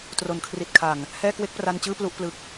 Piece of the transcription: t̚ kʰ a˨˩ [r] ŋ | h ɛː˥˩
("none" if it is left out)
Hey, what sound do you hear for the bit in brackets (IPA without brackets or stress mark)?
none